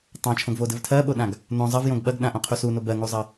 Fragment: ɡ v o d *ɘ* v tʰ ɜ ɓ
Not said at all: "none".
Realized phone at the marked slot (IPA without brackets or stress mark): ɘ